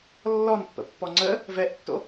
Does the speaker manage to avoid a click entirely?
no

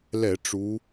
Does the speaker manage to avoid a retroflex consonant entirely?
no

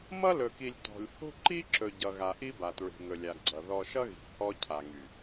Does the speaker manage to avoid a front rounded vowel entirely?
no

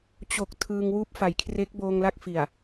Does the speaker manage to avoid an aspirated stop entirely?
no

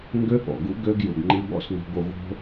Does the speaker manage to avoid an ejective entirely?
yes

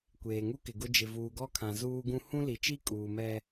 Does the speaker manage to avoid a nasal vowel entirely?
no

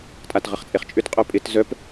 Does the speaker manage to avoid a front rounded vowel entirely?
no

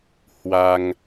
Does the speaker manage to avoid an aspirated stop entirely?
yes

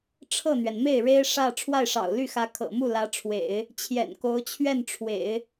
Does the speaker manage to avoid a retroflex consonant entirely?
no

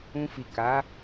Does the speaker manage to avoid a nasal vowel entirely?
no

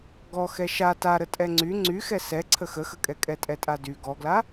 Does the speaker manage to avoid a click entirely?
no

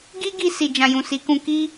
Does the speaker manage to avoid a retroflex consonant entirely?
yes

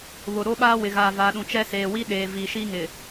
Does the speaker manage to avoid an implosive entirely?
no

